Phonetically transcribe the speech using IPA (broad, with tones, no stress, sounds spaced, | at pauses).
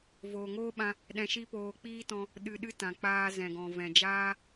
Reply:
v oː˨ ŋ oː˦ ɓ ã˧ | ɗ ɛ̃˧ ʃ i˦ p oː˧ k͡p iː˦ t ɔ̃˧ | ɗ ɨ˧ ɗ ɨ˦ t ã˨ k͡p aː˧ z ɛ̃˨ ɡ ɔ̃˨ v ɛ̃˨ d͡ʒ aː˦